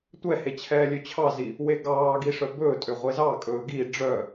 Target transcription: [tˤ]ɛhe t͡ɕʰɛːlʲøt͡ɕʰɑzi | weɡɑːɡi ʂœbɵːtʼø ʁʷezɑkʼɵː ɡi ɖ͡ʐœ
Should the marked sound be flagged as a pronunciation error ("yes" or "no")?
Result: yes